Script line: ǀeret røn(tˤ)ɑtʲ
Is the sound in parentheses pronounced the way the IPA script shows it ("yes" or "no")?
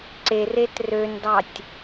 no